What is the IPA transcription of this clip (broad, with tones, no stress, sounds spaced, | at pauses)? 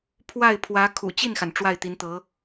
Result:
pʰ w a˥˩ ɪ̯ pʰ w ä˧˥ kʰ ṵ˨˩ t͡ɕ i˥˩ n x a˩ n ʈ͡ʂ w a˥˩ ɪ̯ t̪ i˧˥ n t̪ ɤ˧˥